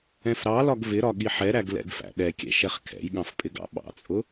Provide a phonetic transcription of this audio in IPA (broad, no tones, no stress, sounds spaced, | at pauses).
ɛ̃ f ɾ ɑ l ɒ ɡ v ɪ ɾ ɒ ɠ i ħ ɛ ɾ æ ɡ l ɛ̰ ɡ f æ̰ ɗ ɛ kʲ ɛ̰ ʃ ɛ χ kʰ ɛ̰ j ɠ ɑ̃ f pʼ ɪ ɡ ɑ̰ ɓ ɑ̰ t͡sʼ ʊ